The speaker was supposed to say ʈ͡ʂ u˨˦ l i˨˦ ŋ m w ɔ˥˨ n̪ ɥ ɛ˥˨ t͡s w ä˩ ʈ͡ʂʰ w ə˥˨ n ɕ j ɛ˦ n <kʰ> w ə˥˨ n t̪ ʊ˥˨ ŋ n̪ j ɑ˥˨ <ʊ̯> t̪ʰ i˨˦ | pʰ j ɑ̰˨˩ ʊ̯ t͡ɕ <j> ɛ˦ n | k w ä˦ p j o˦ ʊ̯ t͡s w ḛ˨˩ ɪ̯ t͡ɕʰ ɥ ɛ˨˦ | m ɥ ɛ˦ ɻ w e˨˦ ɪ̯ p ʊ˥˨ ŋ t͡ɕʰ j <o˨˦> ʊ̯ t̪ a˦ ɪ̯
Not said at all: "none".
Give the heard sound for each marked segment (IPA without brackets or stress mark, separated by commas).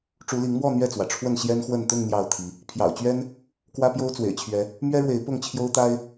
x, ʊ̯, ɥ, o˦